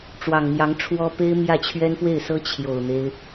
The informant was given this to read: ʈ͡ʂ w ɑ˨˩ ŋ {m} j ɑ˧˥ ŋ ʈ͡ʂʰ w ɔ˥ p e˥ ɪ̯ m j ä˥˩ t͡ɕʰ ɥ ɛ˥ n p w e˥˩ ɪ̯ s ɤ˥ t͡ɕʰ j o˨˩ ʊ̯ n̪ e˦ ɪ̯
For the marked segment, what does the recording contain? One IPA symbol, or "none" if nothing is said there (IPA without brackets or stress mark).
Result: m